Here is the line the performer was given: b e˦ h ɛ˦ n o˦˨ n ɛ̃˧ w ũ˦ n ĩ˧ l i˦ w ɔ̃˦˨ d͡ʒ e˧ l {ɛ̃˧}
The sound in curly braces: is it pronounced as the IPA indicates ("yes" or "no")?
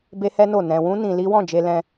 yes